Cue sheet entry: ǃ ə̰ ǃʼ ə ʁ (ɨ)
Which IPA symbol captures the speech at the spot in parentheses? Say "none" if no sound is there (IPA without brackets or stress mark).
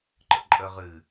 ɨ